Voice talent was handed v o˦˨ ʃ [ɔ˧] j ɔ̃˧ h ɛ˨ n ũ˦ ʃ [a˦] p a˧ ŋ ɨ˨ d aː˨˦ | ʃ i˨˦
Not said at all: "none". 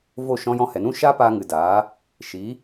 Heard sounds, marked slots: ɔ̃˧, a˦

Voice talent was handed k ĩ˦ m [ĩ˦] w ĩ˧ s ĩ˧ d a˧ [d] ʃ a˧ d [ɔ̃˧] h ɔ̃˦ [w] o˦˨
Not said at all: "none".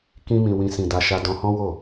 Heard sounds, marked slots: ĩ˧, none, ɔ̃˧, w

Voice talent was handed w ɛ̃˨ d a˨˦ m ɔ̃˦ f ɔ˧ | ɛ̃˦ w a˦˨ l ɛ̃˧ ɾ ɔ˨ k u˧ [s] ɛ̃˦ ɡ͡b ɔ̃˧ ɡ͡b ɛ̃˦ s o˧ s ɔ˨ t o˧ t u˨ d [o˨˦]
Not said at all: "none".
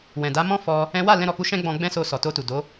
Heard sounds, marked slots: ʃ, o˨˦

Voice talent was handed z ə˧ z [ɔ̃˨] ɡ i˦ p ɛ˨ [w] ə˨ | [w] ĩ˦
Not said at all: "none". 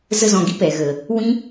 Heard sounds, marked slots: ɔ̃˨, ɣ, w

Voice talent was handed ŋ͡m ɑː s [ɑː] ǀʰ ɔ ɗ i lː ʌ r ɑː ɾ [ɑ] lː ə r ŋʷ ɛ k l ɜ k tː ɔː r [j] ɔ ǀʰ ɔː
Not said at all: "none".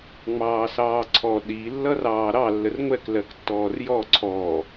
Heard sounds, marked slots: ɑː, ɑ, j

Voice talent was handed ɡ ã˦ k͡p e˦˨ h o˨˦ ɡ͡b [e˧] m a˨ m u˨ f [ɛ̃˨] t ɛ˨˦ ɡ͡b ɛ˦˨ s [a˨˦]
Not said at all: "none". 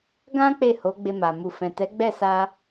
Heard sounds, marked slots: e˧, ɛ̃˨, a˧

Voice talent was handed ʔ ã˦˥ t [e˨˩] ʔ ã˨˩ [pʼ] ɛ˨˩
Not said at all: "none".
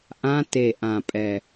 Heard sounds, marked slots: e˨˩, pʼ

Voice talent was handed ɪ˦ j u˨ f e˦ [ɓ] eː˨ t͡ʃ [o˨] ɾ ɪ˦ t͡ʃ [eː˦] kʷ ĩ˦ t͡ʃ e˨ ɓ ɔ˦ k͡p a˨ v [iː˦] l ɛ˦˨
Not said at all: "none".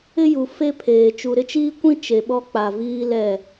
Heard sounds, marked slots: pʰ, u˨, iː˦, iː˦

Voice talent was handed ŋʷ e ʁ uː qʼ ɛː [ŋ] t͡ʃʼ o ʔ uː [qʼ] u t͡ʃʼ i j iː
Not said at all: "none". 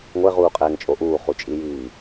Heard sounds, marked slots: ŋ, χ

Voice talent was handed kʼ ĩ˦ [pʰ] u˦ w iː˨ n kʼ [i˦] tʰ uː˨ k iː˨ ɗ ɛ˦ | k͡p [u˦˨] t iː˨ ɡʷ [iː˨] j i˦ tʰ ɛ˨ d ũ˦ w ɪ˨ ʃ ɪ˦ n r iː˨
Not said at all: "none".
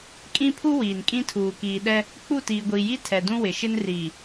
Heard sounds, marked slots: pʰ, ĩ˦, u˦˨, iː˨

